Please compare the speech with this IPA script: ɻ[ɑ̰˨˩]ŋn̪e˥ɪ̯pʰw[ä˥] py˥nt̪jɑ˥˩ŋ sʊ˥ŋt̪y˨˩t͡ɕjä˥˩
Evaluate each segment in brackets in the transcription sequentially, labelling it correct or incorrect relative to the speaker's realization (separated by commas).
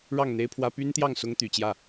incorrect, correct